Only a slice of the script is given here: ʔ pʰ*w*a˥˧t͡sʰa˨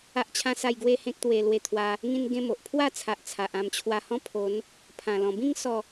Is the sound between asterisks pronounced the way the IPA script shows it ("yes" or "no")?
yes